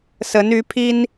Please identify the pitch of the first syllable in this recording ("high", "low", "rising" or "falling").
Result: rising